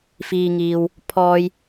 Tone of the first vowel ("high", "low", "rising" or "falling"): low